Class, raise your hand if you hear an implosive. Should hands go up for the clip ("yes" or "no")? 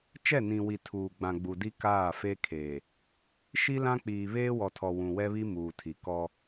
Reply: no